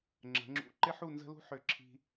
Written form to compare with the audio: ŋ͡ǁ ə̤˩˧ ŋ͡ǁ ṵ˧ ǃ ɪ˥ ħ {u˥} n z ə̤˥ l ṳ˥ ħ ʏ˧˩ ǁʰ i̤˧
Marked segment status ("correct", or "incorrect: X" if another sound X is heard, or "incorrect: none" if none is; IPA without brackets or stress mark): incorrect: u˥˧